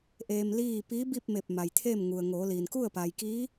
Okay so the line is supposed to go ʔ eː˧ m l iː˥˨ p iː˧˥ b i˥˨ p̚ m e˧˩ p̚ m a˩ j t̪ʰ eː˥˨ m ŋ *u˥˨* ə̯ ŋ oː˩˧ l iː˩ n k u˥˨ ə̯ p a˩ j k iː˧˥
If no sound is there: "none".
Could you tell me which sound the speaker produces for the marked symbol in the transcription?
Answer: u˩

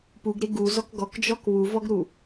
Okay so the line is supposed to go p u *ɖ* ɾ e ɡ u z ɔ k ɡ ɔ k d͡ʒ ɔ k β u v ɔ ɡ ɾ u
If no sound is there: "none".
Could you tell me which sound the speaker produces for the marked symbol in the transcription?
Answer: ɡ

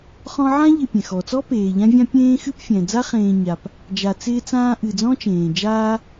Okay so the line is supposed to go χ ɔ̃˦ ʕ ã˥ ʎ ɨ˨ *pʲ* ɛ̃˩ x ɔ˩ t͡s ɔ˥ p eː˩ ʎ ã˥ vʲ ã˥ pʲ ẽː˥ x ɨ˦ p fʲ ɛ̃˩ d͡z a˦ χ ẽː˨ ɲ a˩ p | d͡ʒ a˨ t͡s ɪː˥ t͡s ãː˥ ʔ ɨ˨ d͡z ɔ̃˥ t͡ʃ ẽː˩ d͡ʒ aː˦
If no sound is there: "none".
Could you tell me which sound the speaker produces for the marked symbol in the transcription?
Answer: pʲ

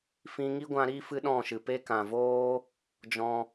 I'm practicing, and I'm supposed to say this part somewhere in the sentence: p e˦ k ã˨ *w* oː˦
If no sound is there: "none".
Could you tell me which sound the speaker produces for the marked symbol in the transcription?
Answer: v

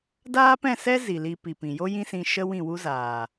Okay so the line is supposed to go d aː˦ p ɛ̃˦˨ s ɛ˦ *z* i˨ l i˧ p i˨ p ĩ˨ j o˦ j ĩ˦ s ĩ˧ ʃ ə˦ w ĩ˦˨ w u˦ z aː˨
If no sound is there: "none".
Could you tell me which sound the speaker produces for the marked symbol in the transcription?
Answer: z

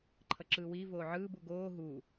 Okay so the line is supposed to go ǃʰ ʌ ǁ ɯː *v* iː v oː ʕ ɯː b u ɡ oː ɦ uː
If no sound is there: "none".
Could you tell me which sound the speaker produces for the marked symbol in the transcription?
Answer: w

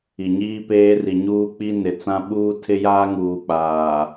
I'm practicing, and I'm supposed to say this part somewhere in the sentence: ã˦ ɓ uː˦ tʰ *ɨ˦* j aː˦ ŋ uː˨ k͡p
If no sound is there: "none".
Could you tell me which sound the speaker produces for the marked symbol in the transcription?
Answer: ɪ˦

